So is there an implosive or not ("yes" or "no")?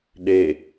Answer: yes